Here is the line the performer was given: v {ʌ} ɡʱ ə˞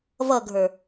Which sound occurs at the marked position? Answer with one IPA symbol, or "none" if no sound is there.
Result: ʌ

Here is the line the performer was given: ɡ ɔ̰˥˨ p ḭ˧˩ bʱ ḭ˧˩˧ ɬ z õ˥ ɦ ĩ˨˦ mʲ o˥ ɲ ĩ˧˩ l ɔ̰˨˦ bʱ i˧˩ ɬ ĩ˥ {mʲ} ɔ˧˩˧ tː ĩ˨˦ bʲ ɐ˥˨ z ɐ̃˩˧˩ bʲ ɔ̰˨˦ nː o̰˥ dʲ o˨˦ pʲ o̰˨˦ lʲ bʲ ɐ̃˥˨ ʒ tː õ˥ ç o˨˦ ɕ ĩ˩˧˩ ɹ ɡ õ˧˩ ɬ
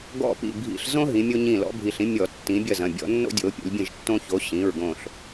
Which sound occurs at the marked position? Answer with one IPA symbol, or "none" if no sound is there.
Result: mʲ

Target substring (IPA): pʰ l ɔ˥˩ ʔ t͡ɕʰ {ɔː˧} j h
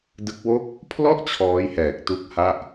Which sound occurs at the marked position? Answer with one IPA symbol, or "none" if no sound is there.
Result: ɔː˦˥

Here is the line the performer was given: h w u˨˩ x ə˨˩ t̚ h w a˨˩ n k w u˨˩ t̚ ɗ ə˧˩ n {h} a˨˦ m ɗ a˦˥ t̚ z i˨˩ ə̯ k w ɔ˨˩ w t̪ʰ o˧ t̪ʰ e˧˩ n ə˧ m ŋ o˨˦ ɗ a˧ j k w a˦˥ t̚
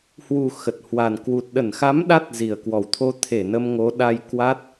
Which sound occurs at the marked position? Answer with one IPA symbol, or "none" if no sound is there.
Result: x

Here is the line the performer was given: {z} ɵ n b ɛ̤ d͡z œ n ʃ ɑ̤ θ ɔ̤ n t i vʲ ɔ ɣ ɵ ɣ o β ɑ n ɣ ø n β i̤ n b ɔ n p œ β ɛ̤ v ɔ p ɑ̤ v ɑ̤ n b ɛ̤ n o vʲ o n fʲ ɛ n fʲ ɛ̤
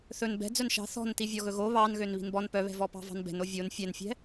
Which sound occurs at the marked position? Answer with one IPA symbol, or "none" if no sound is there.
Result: θ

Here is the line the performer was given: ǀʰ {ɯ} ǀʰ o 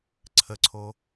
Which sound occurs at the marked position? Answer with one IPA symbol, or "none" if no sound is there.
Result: ə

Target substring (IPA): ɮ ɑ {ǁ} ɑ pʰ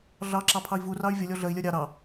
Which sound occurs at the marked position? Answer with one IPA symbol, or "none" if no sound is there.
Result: ǁ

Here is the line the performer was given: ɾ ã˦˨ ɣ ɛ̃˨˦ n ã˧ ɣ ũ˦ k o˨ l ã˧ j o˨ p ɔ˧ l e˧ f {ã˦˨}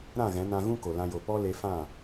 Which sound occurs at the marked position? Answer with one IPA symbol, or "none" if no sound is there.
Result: ã˦˨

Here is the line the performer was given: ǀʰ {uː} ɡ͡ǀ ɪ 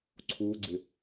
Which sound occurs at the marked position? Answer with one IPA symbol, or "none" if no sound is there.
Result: uː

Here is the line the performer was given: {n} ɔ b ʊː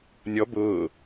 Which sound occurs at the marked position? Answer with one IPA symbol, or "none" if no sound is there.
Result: nʲ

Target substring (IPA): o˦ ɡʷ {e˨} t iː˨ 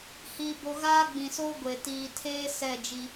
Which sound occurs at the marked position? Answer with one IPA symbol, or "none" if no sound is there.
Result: e˨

